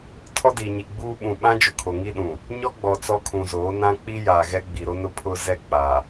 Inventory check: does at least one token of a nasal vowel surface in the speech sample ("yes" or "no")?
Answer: yes